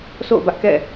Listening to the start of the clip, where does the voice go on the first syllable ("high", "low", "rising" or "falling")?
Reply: falling